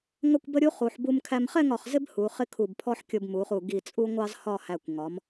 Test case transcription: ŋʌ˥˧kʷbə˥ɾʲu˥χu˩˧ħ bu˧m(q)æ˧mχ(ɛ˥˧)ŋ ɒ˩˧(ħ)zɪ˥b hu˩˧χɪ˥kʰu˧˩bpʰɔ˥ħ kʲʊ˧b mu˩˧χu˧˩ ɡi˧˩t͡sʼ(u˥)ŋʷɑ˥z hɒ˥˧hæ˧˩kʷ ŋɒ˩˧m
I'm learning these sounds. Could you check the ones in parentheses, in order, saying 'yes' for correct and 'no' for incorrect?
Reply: no, yes, no, yes

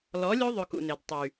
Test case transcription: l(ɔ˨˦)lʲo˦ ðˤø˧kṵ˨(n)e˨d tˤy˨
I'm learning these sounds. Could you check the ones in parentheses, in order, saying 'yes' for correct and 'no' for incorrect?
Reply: yes, yes

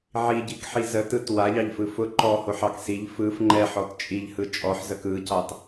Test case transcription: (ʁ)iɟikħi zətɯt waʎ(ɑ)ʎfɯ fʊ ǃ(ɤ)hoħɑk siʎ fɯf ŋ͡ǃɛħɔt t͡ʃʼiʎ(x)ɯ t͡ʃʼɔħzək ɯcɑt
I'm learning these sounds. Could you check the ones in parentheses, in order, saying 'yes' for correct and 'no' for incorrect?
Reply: no, yes, no, no

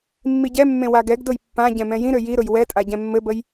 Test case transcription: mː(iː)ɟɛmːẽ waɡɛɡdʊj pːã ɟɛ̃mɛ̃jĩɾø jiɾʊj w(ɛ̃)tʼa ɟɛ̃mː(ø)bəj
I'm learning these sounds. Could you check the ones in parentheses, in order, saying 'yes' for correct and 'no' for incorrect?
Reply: no, no, no

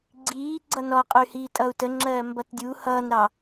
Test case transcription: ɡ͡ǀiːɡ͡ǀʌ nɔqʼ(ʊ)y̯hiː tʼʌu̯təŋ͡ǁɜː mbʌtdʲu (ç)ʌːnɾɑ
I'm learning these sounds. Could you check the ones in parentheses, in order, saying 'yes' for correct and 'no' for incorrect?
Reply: yes, no

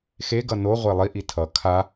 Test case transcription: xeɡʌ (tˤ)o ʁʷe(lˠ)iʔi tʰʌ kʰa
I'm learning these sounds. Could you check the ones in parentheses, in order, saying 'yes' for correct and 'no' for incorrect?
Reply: no, yes

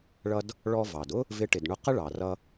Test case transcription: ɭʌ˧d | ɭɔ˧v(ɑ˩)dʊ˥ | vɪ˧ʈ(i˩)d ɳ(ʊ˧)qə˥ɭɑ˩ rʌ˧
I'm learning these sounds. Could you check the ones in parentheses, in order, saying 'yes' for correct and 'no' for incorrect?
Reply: yes, no, yes

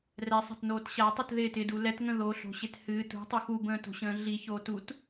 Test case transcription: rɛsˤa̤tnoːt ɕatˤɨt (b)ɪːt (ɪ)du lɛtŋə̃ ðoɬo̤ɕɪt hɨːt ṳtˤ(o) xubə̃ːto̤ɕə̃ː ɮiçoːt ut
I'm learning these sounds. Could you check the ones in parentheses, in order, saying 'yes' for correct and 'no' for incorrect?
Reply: no, yes, no

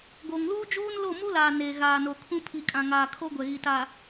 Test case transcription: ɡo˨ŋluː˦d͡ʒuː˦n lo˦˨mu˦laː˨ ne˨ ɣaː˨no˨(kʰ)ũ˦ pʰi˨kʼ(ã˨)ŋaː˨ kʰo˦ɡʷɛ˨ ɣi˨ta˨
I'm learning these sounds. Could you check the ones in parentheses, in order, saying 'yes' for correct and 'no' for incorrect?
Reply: yes, yes

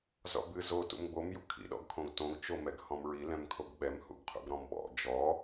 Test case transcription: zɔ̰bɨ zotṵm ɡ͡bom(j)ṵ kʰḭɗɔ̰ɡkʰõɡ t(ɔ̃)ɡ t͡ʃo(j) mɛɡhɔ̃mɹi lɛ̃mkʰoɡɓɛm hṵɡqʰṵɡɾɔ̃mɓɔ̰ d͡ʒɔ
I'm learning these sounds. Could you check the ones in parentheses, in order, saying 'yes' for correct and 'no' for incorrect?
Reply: yes, no, no

